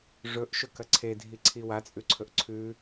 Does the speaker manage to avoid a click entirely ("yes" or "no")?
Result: no